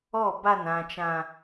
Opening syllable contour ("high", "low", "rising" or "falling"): falling